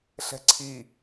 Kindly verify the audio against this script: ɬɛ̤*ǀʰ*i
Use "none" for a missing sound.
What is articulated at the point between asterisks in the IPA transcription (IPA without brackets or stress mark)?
ǀʰ